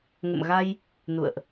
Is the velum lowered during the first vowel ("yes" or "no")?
no